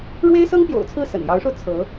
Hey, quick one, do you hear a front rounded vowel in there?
no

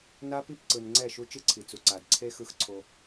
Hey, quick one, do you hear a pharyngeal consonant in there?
no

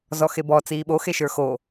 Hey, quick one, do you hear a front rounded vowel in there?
no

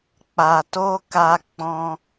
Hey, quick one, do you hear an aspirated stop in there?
no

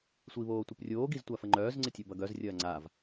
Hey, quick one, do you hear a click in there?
yes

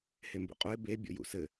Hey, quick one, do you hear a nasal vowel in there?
no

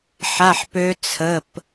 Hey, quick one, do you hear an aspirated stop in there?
yes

